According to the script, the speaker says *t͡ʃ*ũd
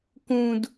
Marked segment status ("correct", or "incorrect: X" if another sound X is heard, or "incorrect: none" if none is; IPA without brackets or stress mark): incorrect: k